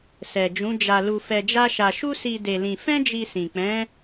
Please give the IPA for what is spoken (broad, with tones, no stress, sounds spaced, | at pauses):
s ɛ˨ d͡ʒ ũ˨˦ d͡ʒ a˧ l u˧ f ɛ˧ d͡ʒ a˦ ʃ a˧ ʃ u˦ s i˧ d e˧ l ĩ˧ f ɛ̃˦ d͡ʒ i˧ s ĩ˨ k͡p ɛ̃˨˦